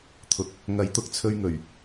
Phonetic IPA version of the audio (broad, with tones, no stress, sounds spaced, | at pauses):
t̪ʰ ʊ˨ k̚ | ŋ ɐ˨˥ j t̪ ʊ˨˥ k̚ t͡sʰ ɵ˧ ɥ ŋ ɵ˨˩ ɥ